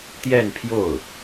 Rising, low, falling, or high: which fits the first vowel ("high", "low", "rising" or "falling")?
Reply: falling